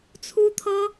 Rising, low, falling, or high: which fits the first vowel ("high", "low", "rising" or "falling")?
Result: high